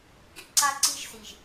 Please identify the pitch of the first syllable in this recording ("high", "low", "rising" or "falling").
high